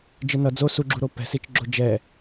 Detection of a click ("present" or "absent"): present